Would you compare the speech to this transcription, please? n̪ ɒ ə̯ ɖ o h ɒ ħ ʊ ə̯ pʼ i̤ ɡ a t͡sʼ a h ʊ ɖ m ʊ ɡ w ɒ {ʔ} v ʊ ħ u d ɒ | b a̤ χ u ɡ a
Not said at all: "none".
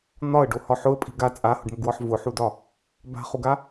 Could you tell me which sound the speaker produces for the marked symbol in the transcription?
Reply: ħ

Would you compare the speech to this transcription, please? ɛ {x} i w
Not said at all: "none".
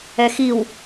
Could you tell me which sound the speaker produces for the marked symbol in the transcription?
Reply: x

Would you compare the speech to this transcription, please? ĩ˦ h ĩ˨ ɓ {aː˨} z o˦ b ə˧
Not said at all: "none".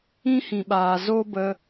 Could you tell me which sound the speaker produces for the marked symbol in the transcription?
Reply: aː˨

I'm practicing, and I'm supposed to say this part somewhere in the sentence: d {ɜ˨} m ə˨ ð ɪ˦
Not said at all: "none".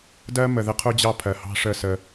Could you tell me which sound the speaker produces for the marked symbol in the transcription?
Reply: ɜ˦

